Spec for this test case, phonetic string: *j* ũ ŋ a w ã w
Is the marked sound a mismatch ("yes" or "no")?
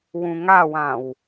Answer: yes